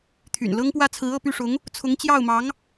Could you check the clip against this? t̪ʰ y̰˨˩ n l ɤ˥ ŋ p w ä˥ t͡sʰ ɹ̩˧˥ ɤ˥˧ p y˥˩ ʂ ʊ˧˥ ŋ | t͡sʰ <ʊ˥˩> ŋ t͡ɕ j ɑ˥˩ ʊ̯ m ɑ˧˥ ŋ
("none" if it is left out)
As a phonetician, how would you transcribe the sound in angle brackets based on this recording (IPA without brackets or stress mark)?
ʊ˧˥